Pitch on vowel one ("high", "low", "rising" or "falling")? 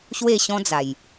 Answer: falling